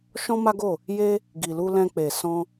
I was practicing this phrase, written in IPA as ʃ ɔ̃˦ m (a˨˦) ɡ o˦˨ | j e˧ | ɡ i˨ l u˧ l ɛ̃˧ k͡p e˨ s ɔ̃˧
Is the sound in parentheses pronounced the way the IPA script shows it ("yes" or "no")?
no